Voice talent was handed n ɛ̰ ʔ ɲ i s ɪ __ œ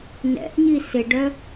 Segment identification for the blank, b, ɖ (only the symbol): ɖ